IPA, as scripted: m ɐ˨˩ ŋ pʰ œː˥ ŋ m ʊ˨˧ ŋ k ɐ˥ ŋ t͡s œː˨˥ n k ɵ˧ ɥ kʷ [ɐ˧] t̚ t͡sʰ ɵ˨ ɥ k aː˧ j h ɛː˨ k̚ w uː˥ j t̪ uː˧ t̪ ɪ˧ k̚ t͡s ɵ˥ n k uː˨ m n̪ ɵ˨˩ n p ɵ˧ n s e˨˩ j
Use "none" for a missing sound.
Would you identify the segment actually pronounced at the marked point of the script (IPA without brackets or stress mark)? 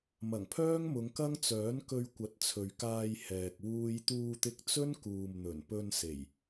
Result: ɐ˨˥